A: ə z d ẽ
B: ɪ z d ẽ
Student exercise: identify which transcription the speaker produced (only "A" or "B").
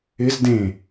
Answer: B